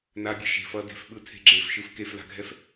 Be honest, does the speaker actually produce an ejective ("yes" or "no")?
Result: no